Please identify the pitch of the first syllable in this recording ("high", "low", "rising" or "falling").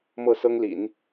falling